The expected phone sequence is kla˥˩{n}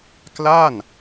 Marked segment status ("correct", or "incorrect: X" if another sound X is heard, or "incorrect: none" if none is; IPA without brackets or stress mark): correct